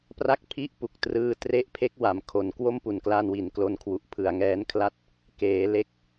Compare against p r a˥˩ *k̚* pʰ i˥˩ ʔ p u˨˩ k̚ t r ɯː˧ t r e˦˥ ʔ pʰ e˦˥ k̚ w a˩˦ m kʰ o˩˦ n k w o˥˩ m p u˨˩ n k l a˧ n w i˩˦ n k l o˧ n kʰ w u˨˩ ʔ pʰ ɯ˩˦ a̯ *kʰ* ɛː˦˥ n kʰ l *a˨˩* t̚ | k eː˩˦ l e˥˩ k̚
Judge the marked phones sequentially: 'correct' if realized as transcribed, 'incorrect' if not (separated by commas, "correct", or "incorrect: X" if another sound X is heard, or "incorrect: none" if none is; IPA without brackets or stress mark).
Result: correct, incorrect: ŋ, incorrect: a˥˩